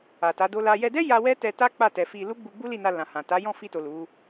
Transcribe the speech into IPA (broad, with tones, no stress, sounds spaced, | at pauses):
a˨ t a˨˦ d o˦ l a˦ j ɛ˧ d ɛ˦ j a˧ w ɛ˦ t ɛ˧ t a˦ k͡p a˦˨ t ɛ˨ f i˧ l u˦ ɡ͡b u˧ ɡ͡b u˦ l i˦˨ n a˧ l ã˨ h ã˨ t a˨˦ j ɔ̃˦˨ f i˧ t o˨ l u˨˦